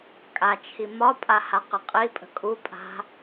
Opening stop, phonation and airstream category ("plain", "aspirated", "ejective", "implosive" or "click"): ejective